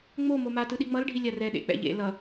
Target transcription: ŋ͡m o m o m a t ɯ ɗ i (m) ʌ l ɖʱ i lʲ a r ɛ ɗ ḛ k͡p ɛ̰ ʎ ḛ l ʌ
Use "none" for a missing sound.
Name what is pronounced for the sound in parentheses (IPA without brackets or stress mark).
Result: ŋ͡m